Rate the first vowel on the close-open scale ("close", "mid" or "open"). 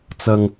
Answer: open